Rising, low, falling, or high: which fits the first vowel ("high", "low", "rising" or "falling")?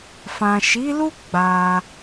low